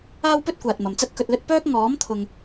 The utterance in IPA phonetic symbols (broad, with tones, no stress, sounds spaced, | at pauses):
aː˥ w p ɵ˥ t̚ kʷ aː˨ t̚ m ɐ˨ m t͡s ɐ˥ t̚ k ɵ˧ t̚ l ɵ˥ t̚ p œː˥ k̚ ŋ ɔː˨˥ m t̪ʰ ʊ˥ ŋ